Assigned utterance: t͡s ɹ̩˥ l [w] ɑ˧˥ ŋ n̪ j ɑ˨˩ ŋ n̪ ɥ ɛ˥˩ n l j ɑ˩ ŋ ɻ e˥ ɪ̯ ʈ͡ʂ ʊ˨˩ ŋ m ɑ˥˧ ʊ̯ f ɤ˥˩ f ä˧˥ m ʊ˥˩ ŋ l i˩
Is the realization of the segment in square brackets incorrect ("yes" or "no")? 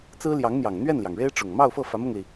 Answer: yes